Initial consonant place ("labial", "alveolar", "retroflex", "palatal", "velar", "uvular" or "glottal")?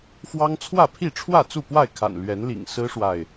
labial